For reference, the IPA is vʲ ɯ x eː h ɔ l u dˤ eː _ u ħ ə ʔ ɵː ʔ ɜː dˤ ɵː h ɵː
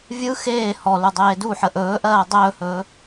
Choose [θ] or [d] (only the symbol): d